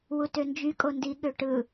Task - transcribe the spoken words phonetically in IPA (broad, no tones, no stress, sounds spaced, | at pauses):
w u t ø n d͡ʒ y kʼ o n d i ɠ ø ʈ ɯ